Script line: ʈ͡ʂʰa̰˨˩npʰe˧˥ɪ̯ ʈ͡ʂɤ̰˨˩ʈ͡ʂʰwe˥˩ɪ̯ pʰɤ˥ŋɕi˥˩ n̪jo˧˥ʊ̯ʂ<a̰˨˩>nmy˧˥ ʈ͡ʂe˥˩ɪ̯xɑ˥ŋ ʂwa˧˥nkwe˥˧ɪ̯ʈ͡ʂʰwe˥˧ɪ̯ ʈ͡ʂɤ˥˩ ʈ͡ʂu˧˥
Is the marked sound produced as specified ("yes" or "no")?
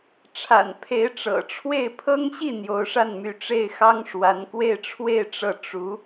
no